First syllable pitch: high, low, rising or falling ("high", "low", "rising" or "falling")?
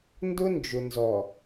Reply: high